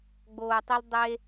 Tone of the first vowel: low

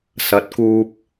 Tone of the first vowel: rising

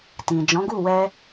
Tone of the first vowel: low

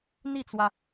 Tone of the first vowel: falling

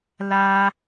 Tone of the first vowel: high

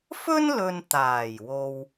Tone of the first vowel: high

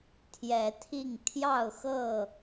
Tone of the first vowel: rising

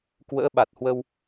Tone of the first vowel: rising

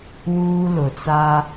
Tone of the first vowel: high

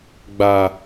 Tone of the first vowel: low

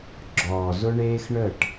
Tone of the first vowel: low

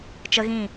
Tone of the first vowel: high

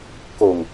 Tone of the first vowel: low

